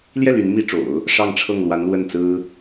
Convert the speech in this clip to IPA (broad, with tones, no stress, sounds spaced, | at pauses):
l j ɛ˥˩ l y˧˥ n m i˥ ʈ͡ʂ o̰˨˩˦ ʊ̯ | ʂ ɑ˥˧ ŋ ʈ͡ʂʰ ɤ˥˩ ŋ l w a˧˥ n l w ə˥˩ n t͡s ɹ̩˥